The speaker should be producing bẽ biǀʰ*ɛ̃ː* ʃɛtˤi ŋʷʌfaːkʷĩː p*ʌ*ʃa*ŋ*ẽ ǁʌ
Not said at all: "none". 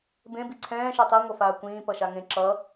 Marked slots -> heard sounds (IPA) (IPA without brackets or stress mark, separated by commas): ɛ̃ː, ʌ, ŋ